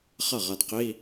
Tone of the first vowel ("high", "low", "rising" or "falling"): falling